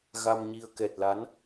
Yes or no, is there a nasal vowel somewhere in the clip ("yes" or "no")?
no